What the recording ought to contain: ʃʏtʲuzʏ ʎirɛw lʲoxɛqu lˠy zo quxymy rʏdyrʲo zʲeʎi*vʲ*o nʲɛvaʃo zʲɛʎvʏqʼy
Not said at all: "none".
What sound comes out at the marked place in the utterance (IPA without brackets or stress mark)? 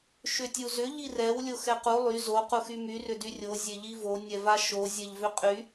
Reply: v